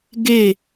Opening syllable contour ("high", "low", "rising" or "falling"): falling